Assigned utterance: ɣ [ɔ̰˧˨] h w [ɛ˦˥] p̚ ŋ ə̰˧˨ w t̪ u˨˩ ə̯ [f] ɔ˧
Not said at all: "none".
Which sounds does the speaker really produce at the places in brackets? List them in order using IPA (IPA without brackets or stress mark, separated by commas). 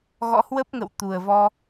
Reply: ɔ̰˧˥, ə˦˥, v